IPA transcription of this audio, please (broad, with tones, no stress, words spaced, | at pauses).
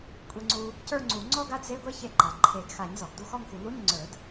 kʷʼe˧ŋ͡ǀu˧ | cə˞˥˧ŋ͡ǀu˨˩˦ ŋ͡ǀɔ˥˧ɡa˥˧dze˧˥˧ɡʷe˥˧ çe˧ǃa˩ ǃʰe˨˩˦ɡ xa˨˩˦ɲzɔ˩ɡ du˥˧xɔ˥˧ŋxu˨˩˦ lu˧˥˧ɲ ŋ͡ǀə˞˨˩˦d